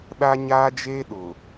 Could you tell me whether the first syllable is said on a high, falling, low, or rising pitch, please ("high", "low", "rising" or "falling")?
high